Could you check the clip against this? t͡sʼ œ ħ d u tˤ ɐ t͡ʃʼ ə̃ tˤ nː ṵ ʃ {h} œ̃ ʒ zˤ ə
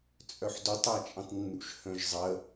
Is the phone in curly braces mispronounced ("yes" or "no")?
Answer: no